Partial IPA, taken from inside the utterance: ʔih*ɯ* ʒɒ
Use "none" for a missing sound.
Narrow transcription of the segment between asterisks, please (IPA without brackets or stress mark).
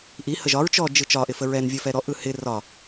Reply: ə